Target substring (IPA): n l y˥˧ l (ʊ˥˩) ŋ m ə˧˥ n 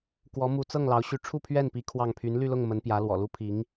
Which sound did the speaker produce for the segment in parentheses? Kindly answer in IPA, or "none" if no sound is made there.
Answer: ʊ˥˩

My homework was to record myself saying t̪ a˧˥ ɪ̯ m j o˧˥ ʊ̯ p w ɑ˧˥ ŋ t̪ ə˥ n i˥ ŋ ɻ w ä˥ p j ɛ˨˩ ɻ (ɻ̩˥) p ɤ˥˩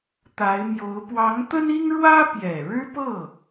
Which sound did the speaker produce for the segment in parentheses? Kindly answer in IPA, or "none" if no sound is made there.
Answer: ɻ̩˥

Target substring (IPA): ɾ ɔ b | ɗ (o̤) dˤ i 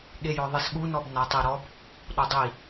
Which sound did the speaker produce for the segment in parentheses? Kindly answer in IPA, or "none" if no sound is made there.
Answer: o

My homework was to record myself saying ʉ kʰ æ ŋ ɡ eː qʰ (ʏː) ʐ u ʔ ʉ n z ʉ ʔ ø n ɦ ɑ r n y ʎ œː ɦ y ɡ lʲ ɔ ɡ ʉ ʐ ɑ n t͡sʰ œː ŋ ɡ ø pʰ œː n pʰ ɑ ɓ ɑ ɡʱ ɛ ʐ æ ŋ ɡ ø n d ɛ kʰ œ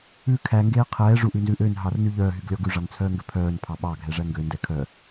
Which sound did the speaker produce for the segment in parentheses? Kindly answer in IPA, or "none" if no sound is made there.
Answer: ɛː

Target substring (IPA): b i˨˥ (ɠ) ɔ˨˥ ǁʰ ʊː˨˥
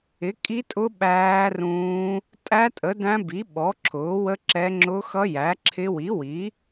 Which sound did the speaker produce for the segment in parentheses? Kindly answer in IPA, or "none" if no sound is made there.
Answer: ɓ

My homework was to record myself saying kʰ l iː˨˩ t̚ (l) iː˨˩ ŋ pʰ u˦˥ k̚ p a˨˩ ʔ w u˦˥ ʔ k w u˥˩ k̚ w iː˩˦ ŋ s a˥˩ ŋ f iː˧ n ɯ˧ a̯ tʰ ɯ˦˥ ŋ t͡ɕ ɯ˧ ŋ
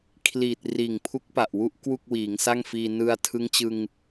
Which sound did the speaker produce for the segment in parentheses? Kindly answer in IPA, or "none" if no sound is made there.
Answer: r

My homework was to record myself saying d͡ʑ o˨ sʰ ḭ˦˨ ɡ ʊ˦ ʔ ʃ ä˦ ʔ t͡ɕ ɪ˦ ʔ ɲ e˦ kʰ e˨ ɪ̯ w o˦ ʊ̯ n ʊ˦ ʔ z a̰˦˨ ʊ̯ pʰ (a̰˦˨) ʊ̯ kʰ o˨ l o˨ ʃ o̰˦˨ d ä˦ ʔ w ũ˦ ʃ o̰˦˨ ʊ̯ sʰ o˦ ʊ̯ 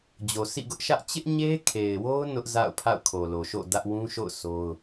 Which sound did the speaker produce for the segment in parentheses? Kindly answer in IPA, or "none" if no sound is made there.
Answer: a̰˦˨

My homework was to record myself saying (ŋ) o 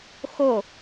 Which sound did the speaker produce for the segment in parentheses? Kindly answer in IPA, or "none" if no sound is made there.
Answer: x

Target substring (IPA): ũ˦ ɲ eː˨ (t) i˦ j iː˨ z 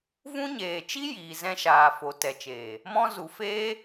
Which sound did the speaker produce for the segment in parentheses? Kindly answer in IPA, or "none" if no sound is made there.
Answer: t͡ʃ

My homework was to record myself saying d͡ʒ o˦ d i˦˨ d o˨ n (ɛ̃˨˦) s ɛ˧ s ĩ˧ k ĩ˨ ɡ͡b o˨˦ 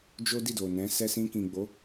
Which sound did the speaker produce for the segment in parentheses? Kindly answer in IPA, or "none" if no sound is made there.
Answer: ɛ̃˨˦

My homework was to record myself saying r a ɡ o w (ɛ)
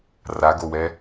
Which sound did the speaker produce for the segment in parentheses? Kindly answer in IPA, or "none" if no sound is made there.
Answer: ɛ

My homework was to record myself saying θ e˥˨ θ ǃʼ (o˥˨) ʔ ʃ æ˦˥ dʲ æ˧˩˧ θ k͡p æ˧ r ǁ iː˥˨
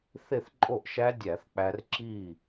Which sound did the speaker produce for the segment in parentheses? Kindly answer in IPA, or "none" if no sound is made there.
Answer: o˥˨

